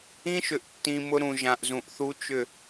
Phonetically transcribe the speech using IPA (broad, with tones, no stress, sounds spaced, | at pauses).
ĩ˦ ʃ ʏ˨ ʔ tː ĩ˨ m ʊ˦ ɾ ũ˨ ʒ ã˨ ʔ z ũ˨ ʔ θ u˦ t͡ʃ ʏ˦˨